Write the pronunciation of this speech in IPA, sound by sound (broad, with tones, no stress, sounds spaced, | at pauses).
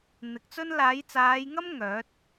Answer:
n̪ ɪ˨˥ k̚ t͡s ɵ˥ n l aː˨˧ j t͡s aː˨˧ j ŋ ɐ˥ m ŋ œː˨˥ t̚